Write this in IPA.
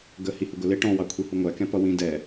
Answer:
ɡ ə h i h ʊ ɡ ʊ l ɪ ʈ ɔ̃ w ɑ kʷʰ i h u ŋʷ æ k ɛ̃ p ʌ w ĩ d ɛ

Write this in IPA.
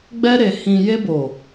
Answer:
ɡ͡b ɛ˧ ɾ e˨ h ĩ˨ j e˧ b o˨

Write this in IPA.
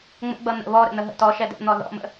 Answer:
ŋ͡m ə̰ ɡ͡b ʌ n̪ ə̰ β ɔ ɾ ə̰ n̪ ə ɦ ə̰ t ɔ ʃ ɛ d ɛ̰ n̪ ɔ ð ɔ̰ m ə̰

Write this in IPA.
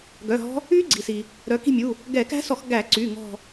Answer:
ɡ œ˩˧˩ ɦ ɔ̤˦˥ | y˦˥ ɡ͡ǀ i˩ s i˩ | ɾ œ˩˧ k i̤˦˨ mʲ u˩˧˩ | ɡ ɛ˧˩˧ k æ̤˦˥ s ɔ˧˩˧ x ɡ æ˧˩˧ ǀ y˩˧˩ ŋ ɔ̤˦˨

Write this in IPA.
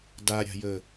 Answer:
d a ɾʲ a̤ j ə

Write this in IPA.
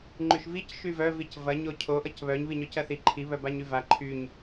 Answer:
ŋ͡ǃ y ʃ v i c ʃ y v œ v i c v ɐ ɲ o cʰ o ʔ ʌ c β œ ɲ β i ɲ œ c ɐ θ i ǃʰ i β œ b a ɲ y v a ǃʰ y ɲ

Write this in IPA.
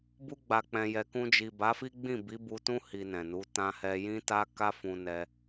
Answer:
b u˦ ɡ͡b a˧ k͡p ɛ̃˧ j ɛ˧ k ũ˧ d͡ʒ i˨ b a˨˦ f i˦ ɡ͡b ĩ˦˨ b i˨˦ b u˧ t ũ˦ h i˧ n ɛ̃˨ n u˨˦ t ã˧ h ɛ˧ j ĩ˦ t a˦ k a˦ f ũ˧ n ɛ˧

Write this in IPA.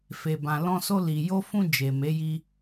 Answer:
f e˨ b ã˨ l ɔ̃˧ s o˧ l i˨ j o˧ f ũ˧ d͡ʒ e˨ m e˨˦ j i˧

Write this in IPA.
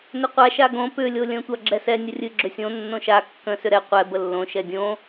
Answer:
n ʏ qʷ a ʃ a ɡ õ p ʏ lʲ o lʲ ə̃ tʷ a ɡ͡ǁ ɛ s ɛ nʲ ə rʲ ɨ ɡ͡ǁ ʏ sʲ õ nː õ ʃ a kː ə̃ s ʏ ɾ ɛ qʷ ɛ b ə lː õ ʃ ɛ dʲ õ

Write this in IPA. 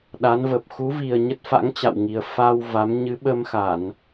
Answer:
ɗ a˨˦ n v ə˨˩ p̚ x u˨˦ v i˨˩ ə̯ ɲ ə˦˥ t̚ f a̰˧˥ ŋ t͡ɕ a̰˧˨ w ŋ i˨˩ ə̯ f a˧ w v a˨˦ m ɲ ɨ˨˦ ɓ ə˧ m x a˧˩˨ n

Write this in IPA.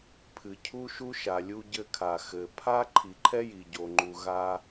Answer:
pʰ ɨ˩ cʰ u˥ ʃ u˥ ʃ a˩ lʲ u˥ ɟ ɘ˥ kʰ a˩ x ɘ˩ pʰ a˥ ǃʰ i˩ ǃʰ ɛ˥ j i˩ ɟ o˩ ŋ͡ǃ u˩ ɣ a˧

